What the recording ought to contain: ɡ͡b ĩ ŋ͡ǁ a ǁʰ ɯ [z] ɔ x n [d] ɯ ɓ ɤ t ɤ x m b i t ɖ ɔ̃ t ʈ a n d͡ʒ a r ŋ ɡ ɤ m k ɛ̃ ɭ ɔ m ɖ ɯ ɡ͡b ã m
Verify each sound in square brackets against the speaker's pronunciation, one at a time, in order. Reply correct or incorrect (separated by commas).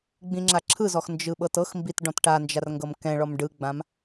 correct, incorrect